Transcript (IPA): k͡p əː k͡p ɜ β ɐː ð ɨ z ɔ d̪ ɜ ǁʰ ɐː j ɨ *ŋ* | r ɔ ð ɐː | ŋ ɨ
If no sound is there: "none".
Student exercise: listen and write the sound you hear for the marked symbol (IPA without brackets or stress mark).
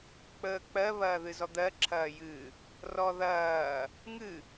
none